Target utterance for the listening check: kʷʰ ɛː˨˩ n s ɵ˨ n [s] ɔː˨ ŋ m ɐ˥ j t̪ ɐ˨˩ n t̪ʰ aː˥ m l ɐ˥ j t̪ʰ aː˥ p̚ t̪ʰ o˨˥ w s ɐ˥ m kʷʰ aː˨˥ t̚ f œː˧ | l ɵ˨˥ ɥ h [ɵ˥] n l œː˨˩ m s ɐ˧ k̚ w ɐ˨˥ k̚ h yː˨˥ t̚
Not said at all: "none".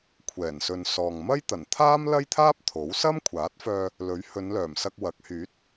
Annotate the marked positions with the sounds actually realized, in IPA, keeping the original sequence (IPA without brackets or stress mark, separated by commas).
s, ɵ˨˧